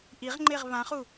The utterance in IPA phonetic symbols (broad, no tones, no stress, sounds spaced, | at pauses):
ʔ i ʁ ŋ͡ǃ e ʁ β ã χ u